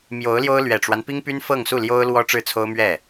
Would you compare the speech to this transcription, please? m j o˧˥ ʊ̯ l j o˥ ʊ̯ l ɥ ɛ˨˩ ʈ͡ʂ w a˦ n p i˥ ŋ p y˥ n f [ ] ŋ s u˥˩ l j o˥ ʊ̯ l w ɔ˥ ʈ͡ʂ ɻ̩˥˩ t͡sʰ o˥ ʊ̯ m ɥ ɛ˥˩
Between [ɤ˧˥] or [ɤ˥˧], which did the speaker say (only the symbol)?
ɤ˥˧